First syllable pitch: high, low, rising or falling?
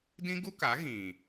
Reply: high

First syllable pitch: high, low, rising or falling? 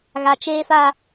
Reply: low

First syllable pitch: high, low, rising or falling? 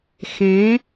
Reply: rising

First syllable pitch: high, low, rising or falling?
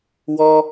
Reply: high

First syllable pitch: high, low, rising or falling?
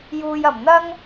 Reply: low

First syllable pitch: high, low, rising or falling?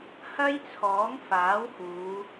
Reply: high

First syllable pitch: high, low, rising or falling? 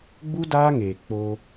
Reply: high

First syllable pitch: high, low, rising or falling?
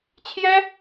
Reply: high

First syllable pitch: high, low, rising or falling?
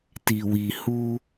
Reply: low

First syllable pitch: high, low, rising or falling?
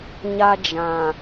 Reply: high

